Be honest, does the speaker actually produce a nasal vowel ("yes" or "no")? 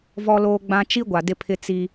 yes